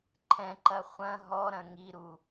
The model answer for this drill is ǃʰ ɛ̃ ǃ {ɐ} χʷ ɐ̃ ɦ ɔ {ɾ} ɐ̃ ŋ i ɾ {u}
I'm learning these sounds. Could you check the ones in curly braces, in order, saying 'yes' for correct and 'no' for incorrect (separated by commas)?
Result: yes, yes, yes